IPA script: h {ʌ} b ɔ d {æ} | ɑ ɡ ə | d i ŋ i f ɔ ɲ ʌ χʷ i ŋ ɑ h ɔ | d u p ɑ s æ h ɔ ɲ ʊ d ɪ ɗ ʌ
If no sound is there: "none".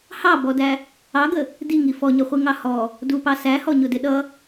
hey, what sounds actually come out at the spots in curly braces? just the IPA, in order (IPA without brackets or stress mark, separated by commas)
ɑ, æ